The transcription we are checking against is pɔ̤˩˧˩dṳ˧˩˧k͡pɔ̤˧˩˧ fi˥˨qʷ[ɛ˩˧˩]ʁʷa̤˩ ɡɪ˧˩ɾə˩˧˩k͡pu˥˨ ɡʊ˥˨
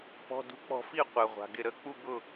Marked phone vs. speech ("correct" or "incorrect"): incorrect